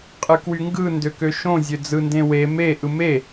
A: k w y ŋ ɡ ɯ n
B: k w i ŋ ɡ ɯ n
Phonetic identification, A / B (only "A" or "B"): A